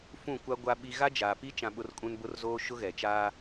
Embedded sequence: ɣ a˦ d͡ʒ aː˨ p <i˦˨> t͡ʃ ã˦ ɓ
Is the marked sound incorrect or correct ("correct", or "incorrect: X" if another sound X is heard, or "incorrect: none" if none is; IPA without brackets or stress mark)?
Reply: incorrect: i˦